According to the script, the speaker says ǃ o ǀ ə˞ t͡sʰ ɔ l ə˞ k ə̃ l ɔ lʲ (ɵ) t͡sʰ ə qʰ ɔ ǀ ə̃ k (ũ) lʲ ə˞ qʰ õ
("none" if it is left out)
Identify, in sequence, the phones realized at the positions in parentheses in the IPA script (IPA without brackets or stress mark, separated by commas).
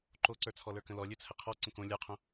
ɵ, õ